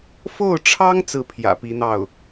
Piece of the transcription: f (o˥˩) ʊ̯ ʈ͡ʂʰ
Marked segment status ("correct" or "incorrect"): correct